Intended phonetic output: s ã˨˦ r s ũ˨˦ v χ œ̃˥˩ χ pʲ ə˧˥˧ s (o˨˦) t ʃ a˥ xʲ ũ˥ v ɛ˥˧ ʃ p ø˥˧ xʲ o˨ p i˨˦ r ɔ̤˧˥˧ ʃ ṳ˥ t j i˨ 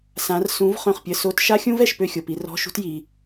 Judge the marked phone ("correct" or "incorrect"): incorrect